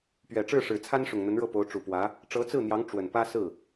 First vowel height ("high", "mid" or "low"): mid